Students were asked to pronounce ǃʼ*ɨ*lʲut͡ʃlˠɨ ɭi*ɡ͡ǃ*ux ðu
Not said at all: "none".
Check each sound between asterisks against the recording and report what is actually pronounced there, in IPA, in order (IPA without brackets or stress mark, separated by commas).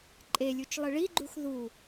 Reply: e, ɡ͡ǃ